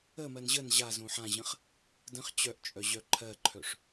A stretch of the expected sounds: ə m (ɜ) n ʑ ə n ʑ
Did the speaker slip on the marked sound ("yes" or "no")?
no